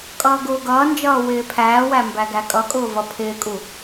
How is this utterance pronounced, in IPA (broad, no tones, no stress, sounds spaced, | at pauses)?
kʼ ʌː ɡ ʊː ɡ ʌː n d͡ʒ ʌː w ɪː pʰ æː w æ m b æ ɡ æ kʼ ʌ kʼ ʊː v ʌ pʰ ɪː kʼ u